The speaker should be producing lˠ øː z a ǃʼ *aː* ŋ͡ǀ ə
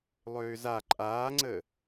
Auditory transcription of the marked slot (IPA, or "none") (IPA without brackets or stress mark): aː